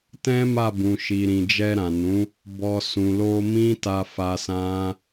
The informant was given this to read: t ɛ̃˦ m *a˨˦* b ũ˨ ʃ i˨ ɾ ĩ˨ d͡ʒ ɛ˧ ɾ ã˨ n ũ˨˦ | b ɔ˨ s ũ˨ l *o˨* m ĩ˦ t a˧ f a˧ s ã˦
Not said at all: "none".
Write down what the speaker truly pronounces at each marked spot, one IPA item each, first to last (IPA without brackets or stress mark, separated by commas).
a˦˨, o˧